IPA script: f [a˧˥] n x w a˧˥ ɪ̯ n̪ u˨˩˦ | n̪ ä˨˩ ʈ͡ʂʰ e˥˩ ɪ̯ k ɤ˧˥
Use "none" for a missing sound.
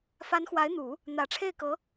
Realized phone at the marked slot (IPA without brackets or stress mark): a˧˥